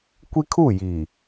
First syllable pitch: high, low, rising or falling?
high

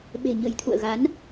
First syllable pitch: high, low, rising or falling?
low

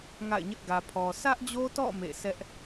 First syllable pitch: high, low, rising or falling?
falling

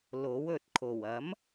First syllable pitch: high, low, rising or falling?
rising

